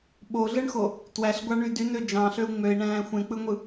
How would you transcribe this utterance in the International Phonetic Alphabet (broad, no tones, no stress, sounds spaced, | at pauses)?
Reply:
ɓ o ɮ ɯ ɳ x o | t w æ ɬ ɡʷ ɑ ɳ y d y n ø d͡ʒ ɑ̃ ɬ ø u̯ ŋ͡m ø i̯ ɳ æ̃ː xʷ ẽ k͡p ɯ ŋʷ ɯ